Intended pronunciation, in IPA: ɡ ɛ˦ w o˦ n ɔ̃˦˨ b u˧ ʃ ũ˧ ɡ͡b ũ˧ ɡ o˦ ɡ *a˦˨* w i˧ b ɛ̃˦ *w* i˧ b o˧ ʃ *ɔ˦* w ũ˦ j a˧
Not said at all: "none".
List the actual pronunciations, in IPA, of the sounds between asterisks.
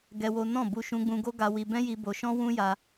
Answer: a˧, j, ɔ̃˦

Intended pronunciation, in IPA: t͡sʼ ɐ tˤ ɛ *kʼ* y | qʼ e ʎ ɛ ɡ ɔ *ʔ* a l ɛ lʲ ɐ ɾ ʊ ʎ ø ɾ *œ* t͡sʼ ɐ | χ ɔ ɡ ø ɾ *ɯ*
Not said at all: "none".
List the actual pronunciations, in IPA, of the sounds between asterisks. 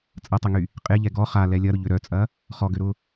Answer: ŋ, χ, œ, ʊ

